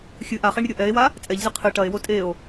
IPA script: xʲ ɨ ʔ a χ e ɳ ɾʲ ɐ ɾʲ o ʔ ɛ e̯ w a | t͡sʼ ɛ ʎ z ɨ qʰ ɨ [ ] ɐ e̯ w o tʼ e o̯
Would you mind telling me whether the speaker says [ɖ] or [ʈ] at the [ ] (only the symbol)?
ʈ